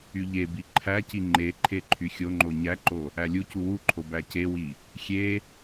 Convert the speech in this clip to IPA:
y ʎ e b i ǃʰ æ c i ŋ͡ǃ e ǃʰ e ǃʰ y xʲ o ŋ͡ǃ o ɲ æ ǃ o | æ lʲ u c u w u ǃʰ o b æ c e w i | xʲ e

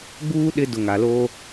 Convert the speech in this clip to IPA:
ɡ͡b uː˦ ɗ ɪ˦ d ʊ˨ ŋ a˨ l o˦

